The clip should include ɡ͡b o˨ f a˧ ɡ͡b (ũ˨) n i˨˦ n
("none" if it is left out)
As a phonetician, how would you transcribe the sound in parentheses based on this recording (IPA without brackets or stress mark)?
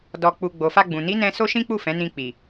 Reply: ũ˨